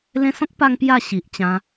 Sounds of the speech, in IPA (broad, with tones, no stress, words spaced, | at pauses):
lẽ˧sɔ̃˦k̚pa˧ŋ pja˥˧ɕi˨ʔt͡ɕã˧